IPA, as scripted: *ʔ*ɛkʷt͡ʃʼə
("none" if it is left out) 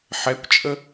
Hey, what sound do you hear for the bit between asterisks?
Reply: ħ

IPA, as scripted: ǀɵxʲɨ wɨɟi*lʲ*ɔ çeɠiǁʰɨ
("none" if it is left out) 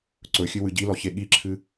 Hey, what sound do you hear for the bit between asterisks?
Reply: l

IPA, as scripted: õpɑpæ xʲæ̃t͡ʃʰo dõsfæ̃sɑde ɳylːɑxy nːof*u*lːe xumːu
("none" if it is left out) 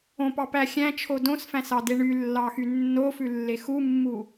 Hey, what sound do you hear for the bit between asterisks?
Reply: ʉ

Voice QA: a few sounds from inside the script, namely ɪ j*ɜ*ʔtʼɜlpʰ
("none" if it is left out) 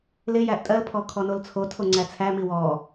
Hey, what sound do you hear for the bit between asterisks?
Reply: æ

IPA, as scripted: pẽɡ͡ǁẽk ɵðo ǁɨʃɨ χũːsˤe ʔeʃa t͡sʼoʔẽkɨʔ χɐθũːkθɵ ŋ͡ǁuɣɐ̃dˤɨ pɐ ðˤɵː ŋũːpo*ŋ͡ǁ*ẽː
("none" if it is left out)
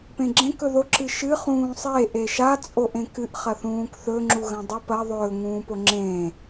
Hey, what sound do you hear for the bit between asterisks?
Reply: ŋ͡ǁ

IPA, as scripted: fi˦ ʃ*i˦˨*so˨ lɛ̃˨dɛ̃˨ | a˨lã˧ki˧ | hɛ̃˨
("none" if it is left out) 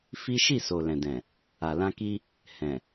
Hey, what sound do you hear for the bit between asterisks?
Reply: i˦˨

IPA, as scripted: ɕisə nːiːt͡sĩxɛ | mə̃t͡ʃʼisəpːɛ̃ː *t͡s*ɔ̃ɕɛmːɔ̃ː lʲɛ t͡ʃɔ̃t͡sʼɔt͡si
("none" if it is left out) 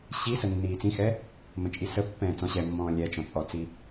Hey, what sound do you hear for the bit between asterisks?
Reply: t͡s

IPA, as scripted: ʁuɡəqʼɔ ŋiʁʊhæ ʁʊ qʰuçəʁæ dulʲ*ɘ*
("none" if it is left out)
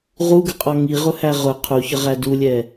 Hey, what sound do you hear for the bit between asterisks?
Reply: ɛ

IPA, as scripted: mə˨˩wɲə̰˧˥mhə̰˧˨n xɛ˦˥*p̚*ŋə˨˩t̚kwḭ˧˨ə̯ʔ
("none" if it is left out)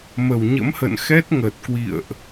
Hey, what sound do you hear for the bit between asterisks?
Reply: t̚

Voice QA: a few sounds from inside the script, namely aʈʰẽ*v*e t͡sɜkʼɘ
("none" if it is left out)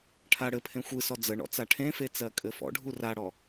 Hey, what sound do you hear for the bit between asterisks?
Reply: f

